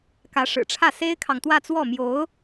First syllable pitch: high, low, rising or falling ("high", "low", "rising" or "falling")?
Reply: rising